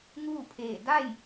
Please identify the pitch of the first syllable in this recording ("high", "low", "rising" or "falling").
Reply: falling